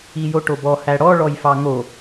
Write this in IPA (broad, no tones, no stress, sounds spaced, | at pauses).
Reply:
i j o ʈ o b ɔ h æ ɽ ɔ ɭ ɔ j f ɑ ŋ o